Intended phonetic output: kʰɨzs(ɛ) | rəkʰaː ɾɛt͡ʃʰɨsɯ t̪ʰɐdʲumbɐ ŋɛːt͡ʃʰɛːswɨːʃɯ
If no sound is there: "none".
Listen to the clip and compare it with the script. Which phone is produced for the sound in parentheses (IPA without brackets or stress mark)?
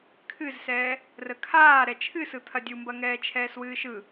ɛː